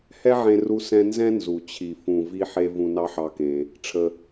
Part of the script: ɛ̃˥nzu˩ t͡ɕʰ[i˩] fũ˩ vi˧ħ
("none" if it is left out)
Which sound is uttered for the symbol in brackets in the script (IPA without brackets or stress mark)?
i˩